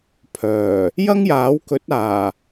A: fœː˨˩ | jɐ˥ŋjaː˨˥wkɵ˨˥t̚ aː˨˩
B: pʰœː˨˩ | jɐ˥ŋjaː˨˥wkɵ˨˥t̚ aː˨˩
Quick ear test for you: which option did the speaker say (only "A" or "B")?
B